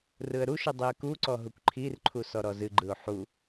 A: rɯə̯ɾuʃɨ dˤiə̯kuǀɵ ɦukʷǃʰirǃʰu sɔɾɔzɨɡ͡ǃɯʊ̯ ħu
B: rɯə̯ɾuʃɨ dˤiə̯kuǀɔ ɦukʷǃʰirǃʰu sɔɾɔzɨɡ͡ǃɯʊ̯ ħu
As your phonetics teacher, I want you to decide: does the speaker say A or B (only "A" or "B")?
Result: B